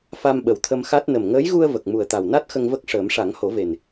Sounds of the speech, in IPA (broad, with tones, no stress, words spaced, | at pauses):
fa˧mɓə˨˩wt̪ʰə˧mxa˦˥t̚ nə˨˩mŋəː˧˥jɣu˧ə̯ və˨˩k̚mu˨˩ə̯t̪a˨˩wna˦˥t̚ xə˧ŋvə˦˥k̚ʂəː˨˩˦m ʂa˨˩˦ŋho˨˩˦ve˨˩n